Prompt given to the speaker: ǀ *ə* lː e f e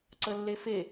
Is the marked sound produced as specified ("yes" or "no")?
yes